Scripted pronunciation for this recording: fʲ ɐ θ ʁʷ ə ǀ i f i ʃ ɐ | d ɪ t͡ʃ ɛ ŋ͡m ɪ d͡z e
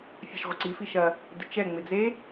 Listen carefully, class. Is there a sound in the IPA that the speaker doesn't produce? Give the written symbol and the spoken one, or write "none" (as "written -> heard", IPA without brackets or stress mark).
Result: θ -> ʃ